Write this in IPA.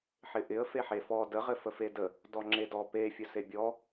ħɪʔɪə̯ feħefɔ də ʁɘfəfedə | dɔŋ͡ǁedɔ pe fʲɘsebʲɔ

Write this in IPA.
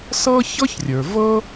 sɤ˥çɤ˥çrʲə˞˩vɤ˥

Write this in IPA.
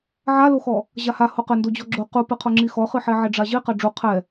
ʕaloxɔ | ʑaha hoqɘ ndod͡ʑɔɡ͡ǁo qupɨqʰo ŋ͡ǁixɔχɨ ħɛʕɛɖ͡ʐaʑi qaɖ͡ʐu qʰɛ

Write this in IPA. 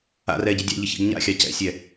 a̰rɛ ɟidʲɑ̰ʎɪ çḭɡɲa̰xʲɑ cɛ̰sʲɛ

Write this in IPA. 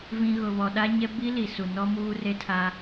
vĩ˨ ɣʊ˨βɔ˨ ɗa˦ɲɛ˦ bi˦li˨su˨ nɔ˦ muː˦re˦tʰa˦

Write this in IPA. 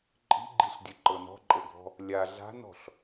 ǃʼi̤ɡ͡ǃiɬdʲɵǃɤ nɔ̤ǃʼɤɡʱɔ̤ | lʲa ɮa̤nɔ̤ɬ

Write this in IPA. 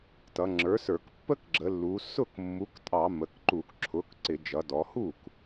tʌ˩˧ŋ͡ǁə˞˩˥ sə˞˧˩˧k pːə˦kɡ͡ǁə˩˧lːu˩˧ sʊ˥˩kmːu˩˥ktʼɑ˧˩˧ mə˩˧kǃu˧˩˧kǁʰʊ˩˥k ǀɪ˧˩˧ d͡ʒʌ˩˧dɔ˩˧hu˥˩k

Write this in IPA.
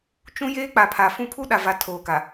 t͡ʃũ˦jeː˦k͡pa˨ pʰa˨fũ˦ pʰu˦ɗa˨va˨ tʰoː˨ka˨

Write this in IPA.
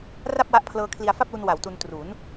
ra˥˩p̚wa˦˥ʔpʰlɤː˧ kʰli˧a̯fa˥˩p̚lu˧n wa˩˦wtu˧ntru˩˦n

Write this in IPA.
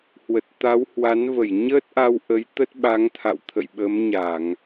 hwə˨˩t̚t̪a˨˦whwa˨˦n və˧˩j ɲəː˦˥t̚ʔa˧wʔə˨˦j t̪ə˦˥t̚ɓa˨˦ŋt̪ʰa̰˧˨w t̪ʰə̰˧˨jɓə˨˦mɲa˧˩˨ŋ

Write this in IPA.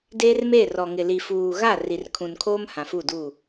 deː˦rme˦˨rɔ˨ŋɪ˨ li˨fuː˨ɣa˦˨ ri˨rkʰũ˨nkʰoː˦m hã˨fu˦˨duː˦˨

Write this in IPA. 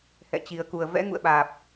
hɛ̰˧˨t͡ɕi˨˩ə̯ ku˨˩ə̯vɛ̰˧˥ŋṵ˧˨ə̯ɓaː˨˩p̚

